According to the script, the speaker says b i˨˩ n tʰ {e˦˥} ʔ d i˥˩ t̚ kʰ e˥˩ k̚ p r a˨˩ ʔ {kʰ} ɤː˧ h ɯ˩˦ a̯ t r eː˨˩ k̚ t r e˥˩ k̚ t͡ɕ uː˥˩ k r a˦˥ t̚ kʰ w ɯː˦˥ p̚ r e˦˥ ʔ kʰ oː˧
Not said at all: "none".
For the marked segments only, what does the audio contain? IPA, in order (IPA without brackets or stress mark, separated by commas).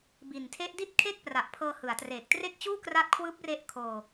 e˦˥, pʰ